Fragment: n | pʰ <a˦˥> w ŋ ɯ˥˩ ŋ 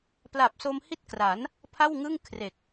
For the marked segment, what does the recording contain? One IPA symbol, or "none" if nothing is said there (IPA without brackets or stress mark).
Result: a˥˩